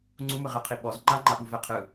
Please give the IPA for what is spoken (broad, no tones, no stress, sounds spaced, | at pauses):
ŋ͡ǀ u m ɯ ʁ ɛ qʰ i ɓ ɔ z ŋ͡ǃ a ŋ͡ǃ a ɓ u v ɛ qʰ ɯ